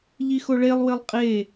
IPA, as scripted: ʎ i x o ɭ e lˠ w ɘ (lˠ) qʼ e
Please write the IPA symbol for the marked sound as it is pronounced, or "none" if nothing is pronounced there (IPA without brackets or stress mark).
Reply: lˠ